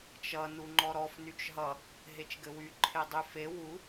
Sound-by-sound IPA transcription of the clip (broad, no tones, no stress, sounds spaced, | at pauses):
t͡ʃ ʌ n u ŋ͡ǃ ɔ ɾ ɔ f n y t͡ʃ ɦ ʌ | ɦ e t͡ʃ ɡ ɘ w y ǃʰ e dˤ y f e w u